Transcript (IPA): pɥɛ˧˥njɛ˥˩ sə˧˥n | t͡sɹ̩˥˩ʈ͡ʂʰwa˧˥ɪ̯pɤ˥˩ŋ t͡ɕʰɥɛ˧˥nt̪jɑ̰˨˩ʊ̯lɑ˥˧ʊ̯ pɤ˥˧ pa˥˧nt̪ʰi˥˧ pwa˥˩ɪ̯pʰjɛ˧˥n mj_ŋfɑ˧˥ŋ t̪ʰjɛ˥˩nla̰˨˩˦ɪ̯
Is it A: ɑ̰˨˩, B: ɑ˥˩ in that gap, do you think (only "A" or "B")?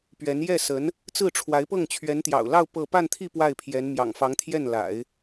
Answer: A